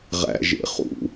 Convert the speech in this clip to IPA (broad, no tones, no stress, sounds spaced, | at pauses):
ʁ æ̰ ʒ ḛ χ ṵ